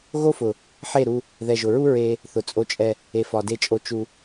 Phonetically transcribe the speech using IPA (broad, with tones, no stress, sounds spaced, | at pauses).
ɣ o˦ f ʊ˨ | ħ e˦˨ ɾ u˧ | ð ɛ˨ ʒ ʊ˨ ɹ u˦ ɹ e˦ | θ ʊ˨ t͡sʼ o˧ t͡ʃʼ ɛ˧ | e˨ f ɒ˨ d e˧ t͡ʃʼ o˧ t͡ʃ u˧